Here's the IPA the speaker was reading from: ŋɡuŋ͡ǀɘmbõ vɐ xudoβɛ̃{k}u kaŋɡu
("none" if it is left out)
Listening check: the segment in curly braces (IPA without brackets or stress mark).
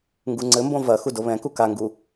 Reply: k